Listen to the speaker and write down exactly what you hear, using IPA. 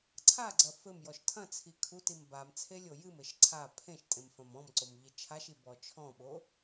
ǀʰ a ɡ͡ǀ ɐ f ɘ m j ɔ ʃ tʰ ɐ̃ t͡sʰ i kʰ u t i m b a m t͡sʰ e lʲ o j ɨ m ɘ ʃ ǀʰ a pʰ ẽ ʃ tʼ ẽ m f ɐ̃ m ɔ̃ m ǀ o m ʎ i t͡ʃʰ a ʃ i b ɔ t͡ʃʰ ɔ̃ ɓ o

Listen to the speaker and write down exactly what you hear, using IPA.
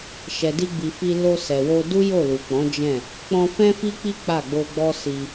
ʃ ɛ˨ d i˧ ɡ͡b i˨ f i˧ l o˧ s ɛ˨ w o˧ d u˦ j o˦˨ l u˨ k͡p ɔ̃˨˦ d͡ʒ ɛ̃˦˨ | k͡p ɔ̃˧ f ɛ̃˦ f i˦ k͡p i˦ k͡p a˦˨ ɡ͡b o˧ ɡ͡b ɔ˦ s i˧

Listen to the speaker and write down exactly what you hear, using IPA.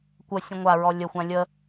kʷ ə sʲ ə̃ ŋʷ a ɹ ɔ lʲ ə xʷ ã lʲ ə

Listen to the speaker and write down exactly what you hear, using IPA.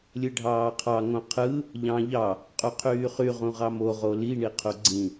lʲ ɯ ɖʱ ɑː qʰ ɑ ŋ õ qʰ ɯ | ʎ ɑ̃ ʎ ɑ | qʼ u qʰ yː χ y ʁ ũ ʁ ɑ m o ʁ o l i ɳ i qʰ u ɡ͡ǀ ĩ

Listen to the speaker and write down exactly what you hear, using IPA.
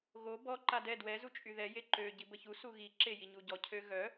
ɣ o b ɔ ǃ a d ɛ d w ɛ z u t͡ʃʼ y ð ɛ j e ǃ ø ɟ i b ə ç u s u ɣ i ǁ e j i ɲ u ɟ ɔ cʰ ø ɣ œ

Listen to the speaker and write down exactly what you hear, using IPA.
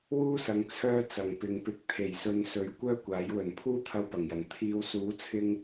w uː˥ s ɐ˨ ŋ t͡sʰ œː˥ t͡s ɐ˨ ŋ p ɪ˨˧ ŋ p ɪ˨˥ k̚ t̪ʰ e˨˩ j s ɵ˨˧ n s ɵ˨˥ ɥ kʷ œː˥ kʷ aː˨˥ j w ɵ˨˩ n pʰ uː˥ t̪ʰ ɐ˧ w p ɐ˨˩ ŋ j ɐ˨˩ n t̪ʰ iː˨˧ w s uː˨˥ t͡sʰ ɪ˧ ŋ

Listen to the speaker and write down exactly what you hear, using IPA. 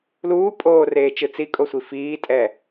l uː pʼ oː r eː t͡ʃ ɯ t͡s i kʼ o sʷ i f iː tʼ ɛ

